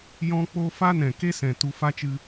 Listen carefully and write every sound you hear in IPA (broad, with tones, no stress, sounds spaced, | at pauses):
j ɔ̃˧ k͡p o˧ f a˦ n ɛ̃˨ k e˦ s ɛ̃˨ t u˧ f a˦ t͡ʃ ɨ˧